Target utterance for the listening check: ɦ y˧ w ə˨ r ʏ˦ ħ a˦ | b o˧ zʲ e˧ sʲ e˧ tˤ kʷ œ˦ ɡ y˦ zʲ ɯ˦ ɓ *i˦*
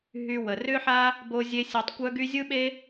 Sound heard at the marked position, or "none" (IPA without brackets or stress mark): e˦